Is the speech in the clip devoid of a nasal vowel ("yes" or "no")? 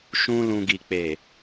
no